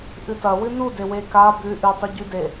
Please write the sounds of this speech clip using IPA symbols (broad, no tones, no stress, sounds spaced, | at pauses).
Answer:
ʔ ɨ t ɐ w ɨ n u d e w e k a b ʉ ʔ ʉ tˤ ɵ ɟ ʉ d e